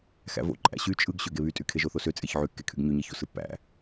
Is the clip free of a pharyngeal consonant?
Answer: no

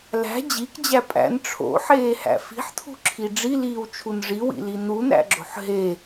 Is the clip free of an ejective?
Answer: no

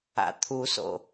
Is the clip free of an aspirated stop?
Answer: no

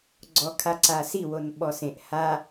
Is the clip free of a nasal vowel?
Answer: no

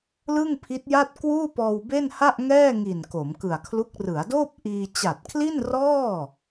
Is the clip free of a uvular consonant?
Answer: yes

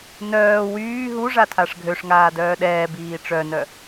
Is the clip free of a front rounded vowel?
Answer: no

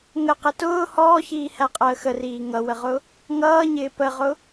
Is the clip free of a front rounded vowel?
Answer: yes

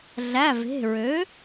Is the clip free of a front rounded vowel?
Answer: no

